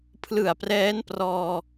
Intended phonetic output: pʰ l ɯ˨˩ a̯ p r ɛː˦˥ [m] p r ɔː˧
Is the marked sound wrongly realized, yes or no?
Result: yes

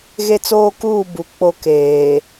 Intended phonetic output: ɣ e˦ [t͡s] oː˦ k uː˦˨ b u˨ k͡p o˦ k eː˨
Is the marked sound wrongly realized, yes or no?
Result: no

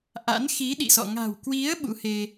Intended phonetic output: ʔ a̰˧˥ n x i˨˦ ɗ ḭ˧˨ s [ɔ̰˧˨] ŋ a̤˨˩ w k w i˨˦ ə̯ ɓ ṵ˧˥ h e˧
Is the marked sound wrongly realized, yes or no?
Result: no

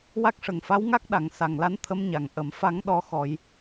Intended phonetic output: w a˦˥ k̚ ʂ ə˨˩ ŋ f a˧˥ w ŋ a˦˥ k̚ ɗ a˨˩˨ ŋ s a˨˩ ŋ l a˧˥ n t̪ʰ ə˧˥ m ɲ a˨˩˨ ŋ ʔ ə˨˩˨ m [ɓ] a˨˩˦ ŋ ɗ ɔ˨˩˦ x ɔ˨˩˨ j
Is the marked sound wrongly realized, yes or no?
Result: yes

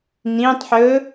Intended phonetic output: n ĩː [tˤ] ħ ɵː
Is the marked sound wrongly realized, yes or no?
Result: no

